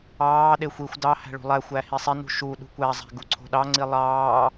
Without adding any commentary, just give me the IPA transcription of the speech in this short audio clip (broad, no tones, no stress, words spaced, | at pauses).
ɑːɗe xʷixʷ dɑ hæ̤ɭṳlˠæxʷæ hisˤenṳ ʃu ɗṳkʷæzˤæ̤ ɡuǀʰo̤ɗɑŋ͡ǀi lˠɑː